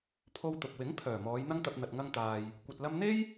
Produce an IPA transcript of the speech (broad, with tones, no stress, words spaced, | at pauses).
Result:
pʰo˧wt̪ʊ˨k̚wɪ˨˥ŋ pʰœː˨˩mɔː˨˧j n̪ɐ˥ŋt̪ɐ˧p̚ n̪ɐ˨t̚ŋɐ˧ŋt̪aː˨j | kʷɐ˨t̚lɐ˧mn̪e˥j